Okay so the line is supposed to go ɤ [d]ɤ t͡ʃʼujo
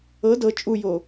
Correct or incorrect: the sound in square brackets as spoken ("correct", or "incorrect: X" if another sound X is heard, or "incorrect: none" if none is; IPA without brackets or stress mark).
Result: correct